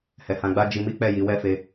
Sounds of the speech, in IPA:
h ɛ˨ h ã˧ ɡ͡b a˦ d͡ʒ i˧ m i˦ k͡p ɛ˦˨ j i˨˦ w ɛ˦ f e˧

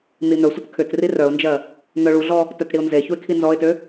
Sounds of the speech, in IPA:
n̪ i n̪ œ sʷ ə t kʰ ʏ t r i r œ ʊ̯ n d͡ʒ ɜ | n̪ œ ɭ u ɮ ɔ | t œ t ɽ i ʊ̯ n z e ç u ɪ̯ kʰ i n z ɔ ɪ̯ t ø

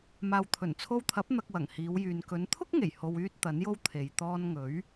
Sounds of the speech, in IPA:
m aː˨ w t̪ʰ ɵ˨˩ n t͡sʰ o˧ w t̪ʰ ɐ˨˥ p̚ n̪ ɐ˧ k̚ w ɐ˨˩ ŋ h iː˨˧ w j yː˨ n k ɵ˨˧ n t̪ʰ ʊ˥ k̚ ŋ e˨˩ j h o˧ w yː˥ t̚ t̪ ɐ˨˥ n j o˥ w t̪ʰ e˨ j t̪ ɔː˧ n ŋ ɵ˨˥ ɥ

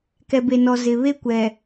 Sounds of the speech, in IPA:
k ɛ˨ b e˨ n ɔ˨ z ɪ˨ β e˦ kʷ ɛ˨

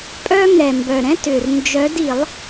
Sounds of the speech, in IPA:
pʼ œ˥ ŋ ɛ˨˩ m b œ˨˩ ɾ ɛ̃˥ t ʏ˨˩ r n d͡ʒ œ˨˦ d i˧˩˧ lˠ

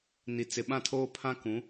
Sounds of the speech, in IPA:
n i˨ t͡s ɪ˨ ɓ ã˦˨ tʰ oː˦ pʰ ã˦ k ũ˨˦

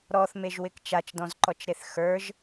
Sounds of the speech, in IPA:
ɾ ɔ θ m e ʒ w ɪ k t͡ʃ a t͡ʃ d ɔ̃ z ǃ ɔ t͡ʃ ɾ e θ x ə˞ ʒ

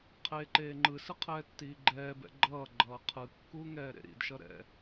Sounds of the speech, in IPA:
qʰ eː ǃ eː ŋ͡ǃ ɯ s ɯ qʰ ɛː tː iː ɡ͡ǃ ɛː b ɛ̰ ɡ͡ǃ ʌː ɡ͡ǃ ʌː qʰ ɯ kː u ŋ ɛː ɾ ḛ ɾ ḭ d ʃ ʌ ɾ ɛ̰

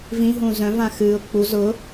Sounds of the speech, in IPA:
v ĩ ɦ ũː z œ̃ v ã x ɨː ʊ̯ k͡p u z ʊ

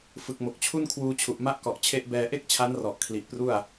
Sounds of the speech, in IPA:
f ɯ˨˩ k̚ m o˨˩ k̚ t͡ɕʰ u˥˩ n kʰ w uː˧ t͡ɕʰ u˨˩ ʔ m a˦˥ ʔ k ɔ˨˩ ʔ t͡ɕʰ e˦˥ ʔ b ɛː˧ ʔ e˥˩ k̚ t͡ɕʰ a˦˥ n r ɔ˨˩ ʔ kʰ l i˨˩ ʔ p r u˥˩ a̯

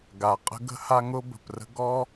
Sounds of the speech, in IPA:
ɡ a˩ qʼ ə̤˥ ɡ ə̤˥ h a˥ ŋ ʊ˥ b ə̤˩ p r ə̤˥ ɡ ɔ˥

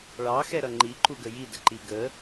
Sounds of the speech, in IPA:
ɭ ɑ x ɛ ɾ ʌ ŋ͡ǃ i ǃ u ɡ ə j i d ə ǃ i ɡ ə

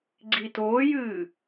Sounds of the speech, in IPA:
ɡ͡ǀ i t oː j ɨː

